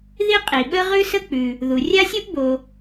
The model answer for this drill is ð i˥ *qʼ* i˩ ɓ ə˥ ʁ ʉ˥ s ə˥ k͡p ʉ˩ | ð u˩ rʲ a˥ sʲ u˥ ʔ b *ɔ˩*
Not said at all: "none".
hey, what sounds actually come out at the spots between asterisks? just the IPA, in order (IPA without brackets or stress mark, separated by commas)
qʼ, o˩